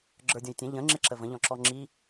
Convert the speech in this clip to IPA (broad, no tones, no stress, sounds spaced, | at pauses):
ɡ͡ǁ ə˞ dʲ ɔ̃ j tʲ ɛ̃ ʎ ə̃ ŋ͡ǁ ɪ ǁ ə v ə̃ ʎ ɔ̃ ǁ ɔ ŋ͡ǁ i